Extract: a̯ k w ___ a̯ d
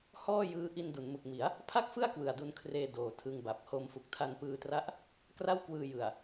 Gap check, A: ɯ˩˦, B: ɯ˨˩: B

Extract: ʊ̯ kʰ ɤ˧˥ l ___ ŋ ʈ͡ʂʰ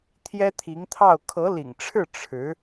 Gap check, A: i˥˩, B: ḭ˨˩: B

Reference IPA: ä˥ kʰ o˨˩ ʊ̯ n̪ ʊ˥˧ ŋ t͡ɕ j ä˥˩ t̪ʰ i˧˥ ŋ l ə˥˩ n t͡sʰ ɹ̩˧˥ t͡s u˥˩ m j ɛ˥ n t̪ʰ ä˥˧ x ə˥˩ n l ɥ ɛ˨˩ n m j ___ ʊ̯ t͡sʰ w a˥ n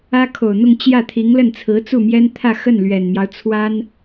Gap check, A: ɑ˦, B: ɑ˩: A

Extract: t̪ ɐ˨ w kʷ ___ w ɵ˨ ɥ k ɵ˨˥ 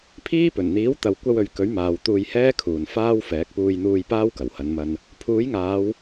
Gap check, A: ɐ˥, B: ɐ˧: B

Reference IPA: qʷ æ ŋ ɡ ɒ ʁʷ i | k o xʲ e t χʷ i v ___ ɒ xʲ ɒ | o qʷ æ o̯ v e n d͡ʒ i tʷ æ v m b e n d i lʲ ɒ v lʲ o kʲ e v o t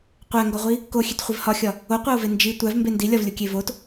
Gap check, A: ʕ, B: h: B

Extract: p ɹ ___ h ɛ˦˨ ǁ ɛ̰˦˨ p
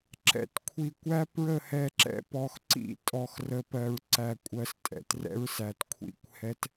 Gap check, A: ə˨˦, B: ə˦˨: B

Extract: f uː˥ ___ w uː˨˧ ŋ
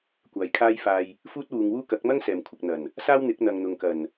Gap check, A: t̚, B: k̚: A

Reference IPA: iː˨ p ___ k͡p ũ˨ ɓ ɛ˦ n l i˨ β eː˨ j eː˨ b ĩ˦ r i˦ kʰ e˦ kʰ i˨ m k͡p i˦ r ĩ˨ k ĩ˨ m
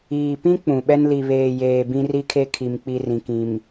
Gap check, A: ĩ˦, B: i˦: A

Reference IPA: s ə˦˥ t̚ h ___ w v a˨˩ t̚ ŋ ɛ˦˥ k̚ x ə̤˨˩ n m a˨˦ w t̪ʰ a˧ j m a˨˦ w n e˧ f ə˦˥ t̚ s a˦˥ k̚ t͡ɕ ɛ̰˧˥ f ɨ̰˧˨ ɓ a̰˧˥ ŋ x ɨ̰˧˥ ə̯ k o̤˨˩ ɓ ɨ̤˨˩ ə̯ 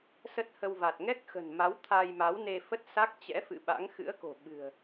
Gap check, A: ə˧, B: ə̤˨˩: A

